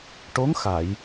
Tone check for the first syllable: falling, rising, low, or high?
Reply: rising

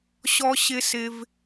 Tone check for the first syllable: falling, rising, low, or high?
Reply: high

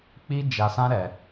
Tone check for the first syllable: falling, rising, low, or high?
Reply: high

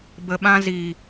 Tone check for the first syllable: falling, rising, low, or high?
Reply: low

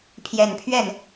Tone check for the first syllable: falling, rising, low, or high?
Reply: low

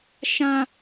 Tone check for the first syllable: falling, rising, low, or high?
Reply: low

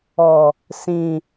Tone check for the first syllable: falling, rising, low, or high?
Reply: low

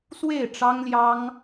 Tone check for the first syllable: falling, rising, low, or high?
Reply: falling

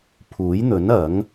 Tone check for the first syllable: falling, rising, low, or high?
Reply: rising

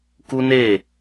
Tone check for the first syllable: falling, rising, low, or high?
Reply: high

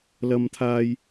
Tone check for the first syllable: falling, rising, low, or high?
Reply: high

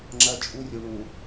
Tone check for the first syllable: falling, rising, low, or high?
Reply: high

